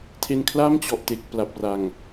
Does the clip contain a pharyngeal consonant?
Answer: no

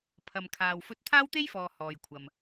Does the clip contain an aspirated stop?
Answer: yes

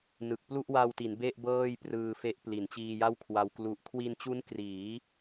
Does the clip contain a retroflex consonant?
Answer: no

